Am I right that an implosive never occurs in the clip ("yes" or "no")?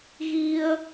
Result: yes